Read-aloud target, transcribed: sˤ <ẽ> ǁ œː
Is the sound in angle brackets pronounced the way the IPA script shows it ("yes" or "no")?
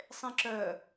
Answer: yes